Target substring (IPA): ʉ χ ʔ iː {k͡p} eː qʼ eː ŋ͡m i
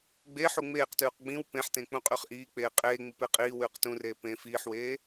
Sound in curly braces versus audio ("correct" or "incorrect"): correct